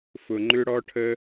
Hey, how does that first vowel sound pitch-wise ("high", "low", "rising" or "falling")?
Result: low